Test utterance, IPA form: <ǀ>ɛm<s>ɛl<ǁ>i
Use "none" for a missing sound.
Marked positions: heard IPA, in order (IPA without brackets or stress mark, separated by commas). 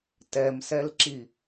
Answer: t, s, ǁ